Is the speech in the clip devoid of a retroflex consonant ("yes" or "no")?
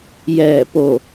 yes